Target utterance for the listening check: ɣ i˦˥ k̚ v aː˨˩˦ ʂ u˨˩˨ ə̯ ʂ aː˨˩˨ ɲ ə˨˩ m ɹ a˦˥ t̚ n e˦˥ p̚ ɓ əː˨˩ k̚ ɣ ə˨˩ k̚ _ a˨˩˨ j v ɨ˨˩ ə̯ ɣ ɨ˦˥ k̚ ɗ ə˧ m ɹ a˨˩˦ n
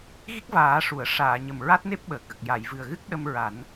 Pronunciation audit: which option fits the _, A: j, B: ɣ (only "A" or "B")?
A